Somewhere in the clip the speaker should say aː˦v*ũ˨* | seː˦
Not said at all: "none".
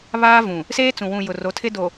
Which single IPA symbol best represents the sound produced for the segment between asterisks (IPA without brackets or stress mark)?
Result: ũ˨